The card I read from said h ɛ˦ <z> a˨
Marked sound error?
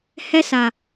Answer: yes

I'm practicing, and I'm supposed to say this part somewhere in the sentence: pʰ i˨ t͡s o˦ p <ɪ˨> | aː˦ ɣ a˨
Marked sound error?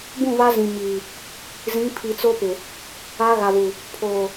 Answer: no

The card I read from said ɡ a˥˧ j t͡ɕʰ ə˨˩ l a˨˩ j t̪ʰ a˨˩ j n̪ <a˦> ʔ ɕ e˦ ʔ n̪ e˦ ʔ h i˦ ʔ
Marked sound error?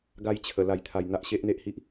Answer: no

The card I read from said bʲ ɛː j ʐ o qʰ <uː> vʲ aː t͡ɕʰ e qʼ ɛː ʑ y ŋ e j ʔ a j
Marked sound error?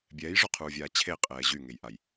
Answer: no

